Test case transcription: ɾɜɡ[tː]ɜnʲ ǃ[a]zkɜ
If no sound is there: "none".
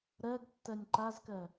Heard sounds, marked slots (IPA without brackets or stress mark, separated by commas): tː, a